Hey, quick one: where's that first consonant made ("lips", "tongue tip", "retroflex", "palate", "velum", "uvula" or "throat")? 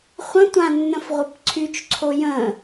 uvula